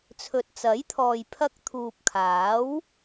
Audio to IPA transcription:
t͡sʰ ɵ˨ t̚ t͡s ɐ˨˥ j t̪ʰ ɔː˨ j pʰ ɐ˧ k̚ t̪ʰ uː˨ p̚ kʰ aː˨˥ w

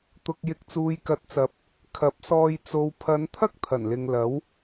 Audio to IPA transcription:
t̪ ʊ˨ k̚ j ɪ˨ k̚ t͡s uː˨ j k ɐ˨˥ t̚ t͡s ɐ˨˥ p̚ | kʰ ɐ˨˥ p̚ s ɔː˧ j t͡s o˨ w pʰ ɐ˨˧ n t̪ʰ ɐ˥ k̚ t̪ʰ ɐ˨˩ n l ɪ˨ ŋ l ɐ˨˥ w

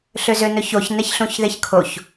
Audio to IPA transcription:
ɬ ø z ø n ɵ ç o ç n ɛ ç ɬ ũ ç ð e ç kʰ o ç

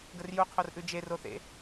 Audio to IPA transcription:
ɡ ə r j u qʰ o r ʔ ʉ d͡ʒ e r o θ ḛ

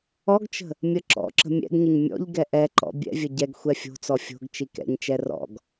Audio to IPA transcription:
ɔ ɡ t͡ʃ ə̤ | mʲ ə ǁ ɔ̰ ǁ ə̤ mʲ ɛ̰ ɡ ɲ ə ɲ mʲ ɔ̰ ʎ ɡ ɛ ʔ ɛ ǃ ɔ̰ bʲ ɛ̰ vʲ ə ɟ ɛ ɡ xʷ ɛ fʲ o̤ t͡s ɔ fʲ o̤ ɡ t͡ʃ i k ɛ̰ ɲ t͡ʃ ɛ r ɔ̰ ɡ

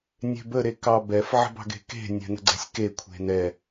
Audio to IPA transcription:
nʲ e̤ b ə ɾ e k ɑ b ɛ f ʕ ə̤ b ɑ̤ ɡ e̤ k e̤ nʲ ɛ̤ n ə̤ ɡ͡ǀ ɛ̤ sʲ k e kʷʰ e̤ n ɛ

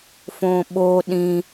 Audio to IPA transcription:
f õ ɓ o ɗ ĩ

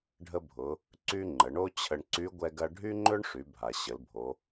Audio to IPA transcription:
ɖʱ ə˧ bʱ ʊ˩˧ | ǀ y˧ ŋ͡ǃ ə˩˧ ɳ o˥ t͡ɕʰ ə˧ ɳ ǀ y˧˥ ɡʷ ɛ˧ ɡ ɐ˧ ɖʱ y˥ ŋ͡ǃ ø˥ ɳ ʂ y˩˧ bʱ a˩ ɕ ə˩˧ l bʱ o˩˧

